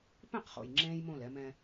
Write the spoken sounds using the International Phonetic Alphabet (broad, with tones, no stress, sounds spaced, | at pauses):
p ẽ˦˨ q χ o̰˨ j ŋ͡ǁ ẽː˦ j m õ˦˨ l ɛ˦ m ɛ̃˦